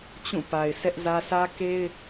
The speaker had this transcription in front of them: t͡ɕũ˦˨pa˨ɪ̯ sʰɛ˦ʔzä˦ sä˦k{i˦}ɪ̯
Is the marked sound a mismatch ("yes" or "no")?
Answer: yes